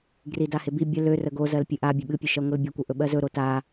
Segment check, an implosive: present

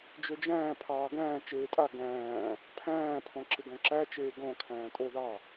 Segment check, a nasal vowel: present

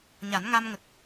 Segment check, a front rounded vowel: absent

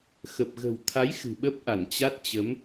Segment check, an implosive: present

